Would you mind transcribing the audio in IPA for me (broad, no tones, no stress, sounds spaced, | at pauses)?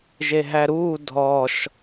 ʒ e ɦ æ ɾ uː dʱ ɔ ʃ